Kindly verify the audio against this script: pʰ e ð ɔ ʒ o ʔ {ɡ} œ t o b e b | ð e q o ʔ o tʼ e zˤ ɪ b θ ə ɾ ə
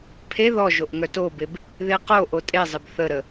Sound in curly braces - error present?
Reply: yes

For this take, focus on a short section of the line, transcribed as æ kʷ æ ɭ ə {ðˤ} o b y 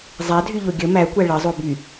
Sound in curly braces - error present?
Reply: yes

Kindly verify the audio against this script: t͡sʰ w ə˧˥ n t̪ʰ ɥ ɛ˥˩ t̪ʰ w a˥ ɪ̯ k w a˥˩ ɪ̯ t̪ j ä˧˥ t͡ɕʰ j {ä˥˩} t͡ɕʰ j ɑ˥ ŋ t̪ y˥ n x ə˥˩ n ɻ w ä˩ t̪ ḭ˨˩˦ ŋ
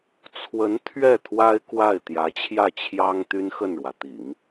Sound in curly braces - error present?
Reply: no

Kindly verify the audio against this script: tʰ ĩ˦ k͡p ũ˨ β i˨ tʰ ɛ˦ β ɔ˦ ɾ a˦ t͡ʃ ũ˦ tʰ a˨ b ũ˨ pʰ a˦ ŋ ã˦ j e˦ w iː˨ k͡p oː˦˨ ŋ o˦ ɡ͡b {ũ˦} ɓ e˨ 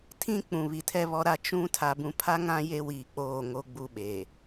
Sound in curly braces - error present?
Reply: yes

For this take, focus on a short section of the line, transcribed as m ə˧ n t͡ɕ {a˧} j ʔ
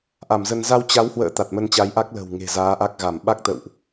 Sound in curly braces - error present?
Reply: yes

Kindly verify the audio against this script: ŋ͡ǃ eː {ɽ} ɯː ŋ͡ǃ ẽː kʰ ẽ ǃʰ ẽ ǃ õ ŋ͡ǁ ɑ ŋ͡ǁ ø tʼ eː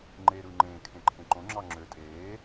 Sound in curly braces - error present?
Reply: yes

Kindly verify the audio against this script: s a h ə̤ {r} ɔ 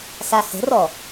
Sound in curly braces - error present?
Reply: no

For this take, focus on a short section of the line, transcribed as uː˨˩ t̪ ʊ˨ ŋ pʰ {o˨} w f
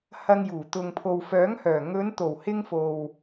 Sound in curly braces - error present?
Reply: no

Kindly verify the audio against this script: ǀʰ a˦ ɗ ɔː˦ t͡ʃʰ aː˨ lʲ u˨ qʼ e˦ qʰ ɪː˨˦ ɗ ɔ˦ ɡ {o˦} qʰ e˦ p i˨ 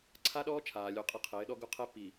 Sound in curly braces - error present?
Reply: no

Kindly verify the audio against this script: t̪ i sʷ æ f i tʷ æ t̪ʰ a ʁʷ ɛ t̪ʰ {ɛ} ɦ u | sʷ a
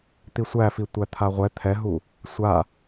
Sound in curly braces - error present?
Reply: no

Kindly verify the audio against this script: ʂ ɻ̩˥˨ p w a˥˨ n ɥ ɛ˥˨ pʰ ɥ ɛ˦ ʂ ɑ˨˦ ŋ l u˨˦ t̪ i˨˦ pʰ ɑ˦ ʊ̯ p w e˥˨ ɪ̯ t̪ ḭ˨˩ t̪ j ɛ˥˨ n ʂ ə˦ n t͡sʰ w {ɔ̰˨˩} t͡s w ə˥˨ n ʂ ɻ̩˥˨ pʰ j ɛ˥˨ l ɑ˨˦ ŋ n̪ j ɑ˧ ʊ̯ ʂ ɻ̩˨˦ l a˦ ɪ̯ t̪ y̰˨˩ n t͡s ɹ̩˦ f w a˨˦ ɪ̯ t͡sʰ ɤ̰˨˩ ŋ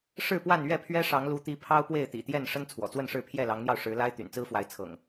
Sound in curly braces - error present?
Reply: no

